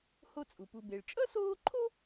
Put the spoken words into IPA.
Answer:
h o˦ t͡sʼ u˩ p u˨ b e˩ ɭ t͡ʃʼ ʌ˥ s oː˦ ǃʰ o˥

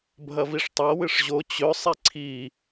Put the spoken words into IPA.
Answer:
bʱ ɐ v i ʂ tˤ a w ɨ ʂ ʑ o t͡ɕ ɵ sˤ i ǀʰ i

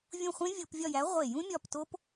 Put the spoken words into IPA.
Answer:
vʲ ũ˦˨ χʷ ẽ˦˥ vʲ o˧˩˧ p vʲ ɒ˦˨ j æ˨˥ ʁʷ e˧˩˧ j ũ˦˥ mʲ ɒ˦˨ p t o˦˥ p

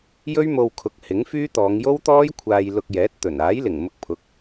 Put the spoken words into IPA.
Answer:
j ɵ˥ ɥ m o˧ w kʰ ʊ˨˥ k̚ h ɪ˨˥ ŋ f yː˥ t̪ ɔː˨˧ ŋ j o˥ w t̪ ɔː˥ j kʷʰ aː˧ j l ʊ˧ k̚ j ɛː˨˥ t̚ t̪ ɵ˨˩ n aː˨˥ j l ɪ˨˩ ŋ m ʊ˧ k̚ pʰ ʊ˨˥ k̚

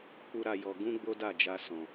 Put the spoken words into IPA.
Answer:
k͡p u˦ ɾ a˧ j ɔ˧ ɡ ũ˦ ɡ͡b o˦ d a˦˨ d͡ʒ a˧ s ɔ̃˨

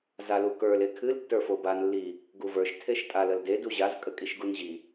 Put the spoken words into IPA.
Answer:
z a l u k ə˞ l e kʰ ɨ l tː ə˞ f o b a n lː i | ɡ u v ə˞ ʃ tʰ e ʃ tʼ a l ə l d e d u ʑ a z kʼ ə kʼ i ʃ ɡ u n ʑ i

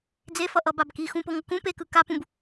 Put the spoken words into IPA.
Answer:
d͡z e f ʌ ʔ ʌ b a b k i x ũ p o ŋ ʌ k ũ p e k ɯ k a p ũ b

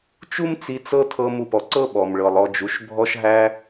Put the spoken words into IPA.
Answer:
t͡ʃ u˦ m t͡s i˧ t͡s ɤ˧ tʰ ɤ˧ m u˨ p ɔ˨ ǀ ɤ˦ ɓ ɔ˨ m ɭ ɤ˨ lˠ ɔ˧ d͡ʒ u˨˦ ʃ bʱ ɔ˧ ʃ ɦ æ˧

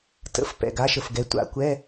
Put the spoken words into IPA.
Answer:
t ə̰˨˩˦ f p ɛ̰˨ ɡ a˥ ʃ ə˨ f ɡ ɛ˨˦ tʷ a̰˨˦ kʷ ɛ˧˥˧

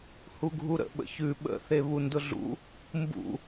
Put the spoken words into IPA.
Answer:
h u ɡʱ u ɾ ə̰ ɓ ə̰ ç ʉ ɓ ə̰ θ e β u n d ʊ ɮ ṵ | m b ṵ

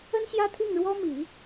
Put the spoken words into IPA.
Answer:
ə˥ n ɕ j ä˥ t̪ʰ i˥˩ ŋ ɻ w ɔ˥ m i˨˩˦

